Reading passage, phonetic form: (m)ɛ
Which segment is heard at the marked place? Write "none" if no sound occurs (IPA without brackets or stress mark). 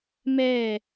m